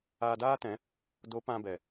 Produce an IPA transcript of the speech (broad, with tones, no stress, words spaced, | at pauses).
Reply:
aː˧daː˦tɛ̃˨˦ | do˨˦ pã˧bɛ˨